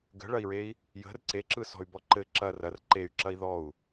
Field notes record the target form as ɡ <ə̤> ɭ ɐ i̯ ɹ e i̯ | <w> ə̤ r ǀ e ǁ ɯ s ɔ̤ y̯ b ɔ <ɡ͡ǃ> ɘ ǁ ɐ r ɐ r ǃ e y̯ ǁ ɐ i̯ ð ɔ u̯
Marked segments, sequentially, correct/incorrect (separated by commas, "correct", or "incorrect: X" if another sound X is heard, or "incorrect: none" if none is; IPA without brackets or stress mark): correct, incorrect: j, incorrect: ǃ